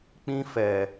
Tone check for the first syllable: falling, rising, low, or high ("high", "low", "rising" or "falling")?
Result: high